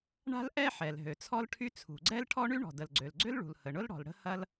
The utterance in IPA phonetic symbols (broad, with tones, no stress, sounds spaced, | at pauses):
ɳ a̤˥ l ʔ ɛ˥ ħ ɛ˩ l ɦ ø˩ t͡sʰ ɔ˥ l ʈʰ y˥ t͡sʰ ṳ˩ ɡ͡ǀ ɛ˥ l ʈʰ ɔ˥ ɳ y˥ ɳ ɔ̤˩ d ə˩ l ɡ͡ǀ ø˩ l ɡ͡ǀ ʏ˥ l ɭ ṳ˩ l h ə˩ ɳ ʊ˥ l ɽ ɔ̤˩ l ɽ ə̤˥ h ɐ˥ l